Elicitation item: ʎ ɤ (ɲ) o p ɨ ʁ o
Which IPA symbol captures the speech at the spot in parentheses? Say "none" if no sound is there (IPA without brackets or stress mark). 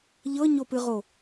ɲ